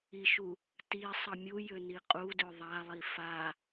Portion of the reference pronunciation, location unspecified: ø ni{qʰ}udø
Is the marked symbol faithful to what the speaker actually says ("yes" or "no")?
no